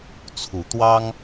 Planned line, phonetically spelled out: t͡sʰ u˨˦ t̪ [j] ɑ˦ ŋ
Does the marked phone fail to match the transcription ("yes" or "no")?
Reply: yes